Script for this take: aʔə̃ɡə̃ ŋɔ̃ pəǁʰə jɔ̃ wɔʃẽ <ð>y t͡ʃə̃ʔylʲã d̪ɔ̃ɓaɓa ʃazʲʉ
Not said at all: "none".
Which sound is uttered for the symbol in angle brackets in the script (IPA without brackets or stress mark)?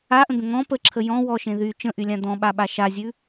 ð